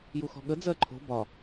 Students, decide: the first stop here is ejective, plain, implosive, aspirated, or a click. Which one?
implosive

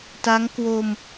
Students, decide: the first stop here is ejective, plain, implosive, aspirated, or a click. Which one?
plain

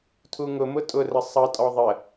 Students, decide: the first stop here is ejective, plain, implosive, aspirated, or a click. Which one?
aspirated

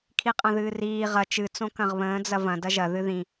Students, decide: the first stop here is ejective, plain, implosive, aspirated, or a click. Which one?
aspirated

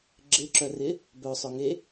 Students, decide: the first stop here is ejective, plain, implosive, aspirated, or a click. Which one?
click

